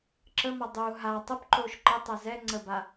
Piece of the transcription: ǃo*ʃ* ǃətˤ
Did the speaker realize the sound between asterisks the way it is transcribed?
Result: yes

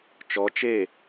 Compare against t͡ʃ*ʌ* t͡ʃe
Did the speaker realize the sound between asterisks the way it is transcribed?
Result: no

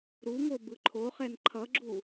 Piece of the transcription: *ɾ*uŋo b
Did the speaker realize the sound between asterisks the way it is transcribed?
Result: yes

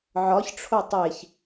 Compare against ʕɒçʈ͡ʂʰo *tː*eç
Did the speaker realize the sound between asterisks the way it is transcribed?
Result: no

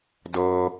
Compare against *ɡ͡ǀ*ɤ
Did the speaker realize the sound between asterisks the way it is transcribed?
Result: no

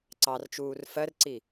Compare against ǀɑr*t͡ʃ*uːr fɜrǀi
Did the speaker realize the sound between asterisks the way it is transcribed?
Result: yes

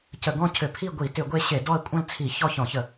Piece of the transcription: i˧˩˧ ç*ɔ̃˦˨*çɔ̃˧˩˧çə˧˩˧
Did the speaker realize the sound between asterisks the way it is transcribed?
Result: no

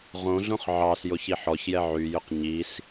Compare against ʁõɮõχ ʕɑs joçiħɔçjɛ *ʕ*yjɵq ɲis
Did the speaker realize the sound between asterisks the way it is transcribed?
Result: yes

